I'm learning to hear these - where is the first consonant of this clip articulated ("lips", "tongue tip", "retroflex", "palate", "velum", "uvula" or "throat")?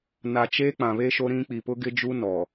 tongue tip